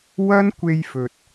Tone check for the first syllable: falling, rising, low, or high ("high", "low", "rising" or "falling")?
high